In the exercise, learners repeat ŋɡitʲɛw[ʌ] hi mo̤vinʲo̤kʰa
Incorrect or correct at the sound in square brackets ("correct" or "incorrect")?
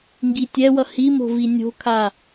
correct